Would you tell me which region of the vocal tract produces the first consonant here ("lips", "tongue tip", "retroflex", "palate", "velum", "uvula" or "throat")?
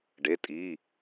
retroflex